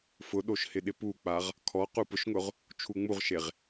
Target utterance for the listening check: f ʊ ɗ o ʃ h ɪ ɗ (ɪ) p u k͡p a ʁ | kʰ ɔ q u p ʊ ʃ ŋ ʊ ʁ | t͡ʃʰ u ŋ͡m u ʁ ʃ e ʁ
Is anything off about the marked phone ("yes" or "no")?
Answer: no